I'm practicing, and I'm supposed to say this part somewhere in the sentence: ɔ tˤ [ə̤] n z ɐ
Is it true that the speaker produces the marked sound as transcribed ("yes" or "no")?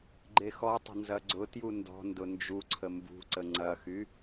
yes